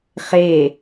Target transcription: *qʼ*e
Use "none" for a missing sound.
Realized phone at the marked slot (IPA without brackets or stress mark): χ